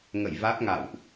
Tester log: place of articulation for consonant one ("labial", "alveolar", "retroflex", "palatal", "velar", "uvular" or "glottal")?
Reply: velar